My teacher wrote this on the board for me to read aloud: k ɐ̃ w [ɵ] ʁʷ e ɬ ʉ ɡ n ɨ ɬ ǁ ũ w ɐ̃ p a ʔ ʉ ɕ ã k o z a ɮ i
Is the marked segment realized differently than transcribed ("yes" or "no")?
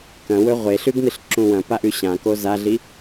no